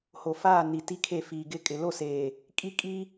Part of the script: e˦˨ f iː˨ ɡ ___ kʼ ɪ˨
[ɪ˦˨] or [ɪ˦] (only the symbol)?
ɪ˦˨